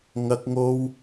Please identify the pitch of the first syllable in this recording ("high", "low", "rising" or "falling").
high